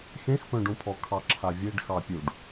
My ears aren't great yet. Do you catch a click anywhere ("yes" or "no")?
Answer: yes